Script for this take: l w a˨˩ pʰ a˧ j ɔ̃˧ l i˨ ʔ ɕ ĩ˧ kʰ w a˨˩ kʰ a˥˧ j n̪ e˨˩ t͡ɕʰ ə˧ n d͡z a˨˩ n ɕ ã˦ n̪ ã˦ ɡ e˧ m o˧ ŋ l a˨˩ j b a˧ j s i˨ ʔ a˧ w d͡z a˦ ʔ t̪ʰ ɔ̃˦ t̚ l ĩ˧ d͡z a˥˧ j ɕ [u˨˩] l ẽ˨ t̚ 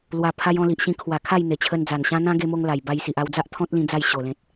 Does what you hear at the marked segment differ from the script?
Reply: yes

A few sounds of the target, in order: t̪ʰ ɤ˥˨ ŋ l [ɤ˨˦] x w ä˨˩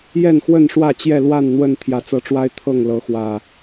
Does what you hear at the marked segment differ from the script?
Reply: no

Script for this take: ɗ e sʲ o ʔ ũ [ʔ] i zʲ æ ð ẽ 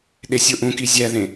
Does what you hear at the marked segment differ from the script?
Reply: yes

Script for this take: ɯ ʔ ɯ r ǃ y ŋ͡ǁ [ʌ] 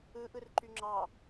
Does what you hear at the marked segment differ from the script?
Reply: yes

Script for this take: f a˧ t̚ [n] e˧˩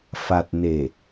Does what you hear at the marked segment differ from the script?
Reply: no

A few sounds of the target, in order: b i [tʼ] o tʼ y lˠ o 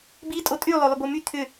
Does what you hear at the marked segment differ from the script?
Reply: no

